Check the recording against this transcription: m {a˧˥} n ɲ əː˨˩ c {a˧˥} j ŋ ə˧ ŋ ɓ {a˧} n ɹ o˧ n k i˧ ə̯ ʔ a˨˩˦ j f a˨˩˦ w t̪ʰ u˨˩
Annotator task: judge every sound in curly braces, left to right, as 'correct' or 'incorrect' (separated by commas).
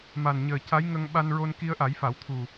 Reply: incorrect, correct, correct